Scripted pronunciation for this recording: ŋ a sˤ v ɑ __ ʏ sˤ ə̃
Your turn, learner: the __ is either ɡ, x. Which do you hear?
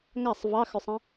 x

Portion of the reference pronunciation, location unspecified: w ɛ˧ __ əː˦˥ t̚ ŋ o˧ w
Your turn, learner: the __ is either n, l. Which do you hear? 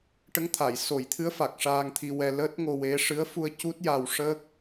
l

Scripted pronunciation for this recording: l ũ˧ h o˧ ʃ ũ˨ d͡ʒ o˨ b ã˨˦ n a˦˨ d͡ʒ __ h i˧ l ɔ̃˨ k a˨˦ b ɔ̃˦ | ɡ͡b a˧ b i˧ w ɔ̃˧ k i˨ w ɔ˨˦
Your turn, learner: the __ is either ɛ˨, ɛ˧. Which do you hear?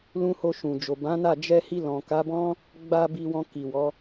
ɛ˧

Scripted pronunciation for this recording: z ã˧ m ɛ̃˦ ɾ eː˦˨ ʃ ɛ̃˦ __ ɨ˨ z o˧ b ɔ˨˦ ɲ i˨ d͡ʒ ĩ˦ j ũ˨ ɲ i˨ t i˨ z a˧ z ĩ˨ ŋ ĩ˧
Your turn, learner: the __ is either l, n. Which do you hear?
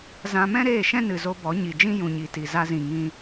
n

